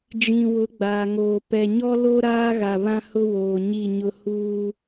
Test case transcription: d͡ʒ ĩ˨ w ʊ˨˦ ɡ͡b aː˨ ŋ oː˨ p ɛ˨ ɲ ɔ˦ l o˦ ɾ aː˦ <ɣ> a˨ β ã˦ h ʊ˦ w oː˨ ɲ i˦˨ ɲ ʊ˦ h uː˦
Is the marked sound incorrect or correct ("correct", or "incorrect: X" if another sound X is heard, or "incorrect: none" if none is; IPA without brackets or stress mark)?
correct